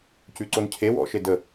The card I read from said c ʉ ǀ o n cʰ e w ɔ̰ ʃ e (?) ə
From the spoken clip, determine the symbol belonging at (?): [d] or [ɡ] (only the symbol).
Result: d